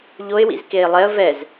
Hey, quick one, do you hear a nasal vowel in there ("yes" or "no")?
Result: no